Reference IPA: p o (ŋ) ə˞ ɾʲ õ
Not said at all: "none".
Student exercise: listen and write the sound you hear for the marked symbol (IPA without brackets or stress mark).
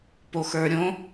x